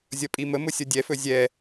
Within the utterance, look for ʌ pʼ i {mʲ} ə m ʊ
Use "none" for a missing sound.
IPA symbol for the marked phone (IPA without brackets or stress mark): m